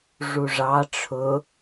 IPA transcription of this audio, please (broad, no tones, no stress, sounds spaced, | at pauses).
ʐ u ʐ ɑ ʈ͡ʂʰ ʊ